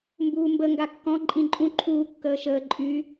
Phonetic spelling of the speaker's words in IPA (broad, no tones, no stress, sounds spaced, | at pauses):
m b uː m b ə ŋ ɡ a kː ɔ̃ ǃʼ ĩ ǃʼ ũ ǃʰ uː kː əː ʃ əː ǃʼ y